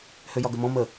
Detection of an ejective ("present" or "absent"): absent